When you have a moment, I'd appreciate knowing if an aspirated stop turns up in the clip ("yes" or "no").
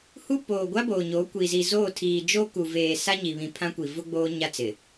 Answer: yes